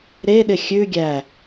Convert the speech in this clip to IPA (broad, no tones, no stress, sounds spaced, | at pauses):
ɾ e ɗ ɪ xʲ ʉ ɡʲ æ